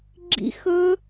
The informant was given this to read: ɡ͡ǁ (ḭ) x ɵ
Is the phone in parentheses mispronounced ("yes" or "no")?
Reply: no